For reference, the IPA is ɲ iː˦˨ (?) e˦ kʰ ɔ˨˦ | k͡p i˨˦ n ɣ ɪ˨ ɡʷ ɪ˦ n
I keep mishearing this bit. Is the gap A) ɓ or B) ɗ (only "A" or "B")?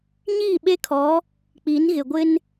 A